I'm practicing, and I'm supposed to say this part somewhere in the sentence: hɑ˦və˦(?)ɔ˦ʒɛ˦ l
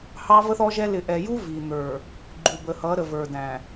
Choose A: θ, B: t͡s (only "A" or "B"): A